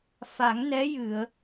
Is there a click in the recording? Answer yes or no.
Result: no